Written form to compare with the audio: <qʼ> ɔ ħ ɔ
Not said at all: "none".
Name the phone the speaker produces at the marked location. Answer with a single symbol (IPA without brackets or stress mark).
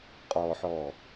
qʼ